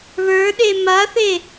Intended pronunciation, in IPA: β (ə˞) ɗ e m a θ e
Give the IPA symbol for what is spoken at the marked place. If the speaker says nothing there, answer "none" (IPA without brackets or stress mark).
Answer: ə˞